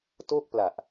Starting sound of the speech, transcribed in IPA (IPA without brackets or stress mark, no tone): t